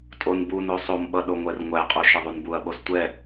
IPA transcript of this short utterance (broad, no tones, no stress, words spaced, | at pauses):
tʼon buno sˤomɓʌ ɗoŋʷɛrŋʷæqʼo ʃɐðˤunbuɐ̯ɓos tʷɛ